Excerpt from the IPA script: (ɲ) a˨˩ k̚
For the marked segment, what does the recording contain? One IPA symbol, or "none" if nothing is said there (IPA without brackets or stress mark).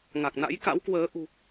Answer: ŋ